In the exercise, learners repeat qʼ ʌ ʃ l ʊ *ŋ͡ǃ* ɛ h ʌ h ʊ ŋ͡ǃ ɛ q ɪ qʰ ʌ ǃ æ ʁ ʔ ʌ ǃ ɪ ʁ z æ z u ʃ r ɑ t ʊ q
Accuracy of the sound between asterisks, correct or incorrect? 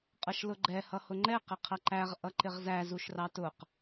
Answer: incorrect